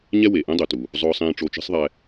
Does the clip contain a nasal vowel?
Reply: yes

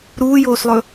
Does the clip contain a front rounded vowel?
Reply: no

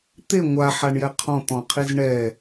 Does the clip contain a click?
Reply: no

